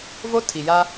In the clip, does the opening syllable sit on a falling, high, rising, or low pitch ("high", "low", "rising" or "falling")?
high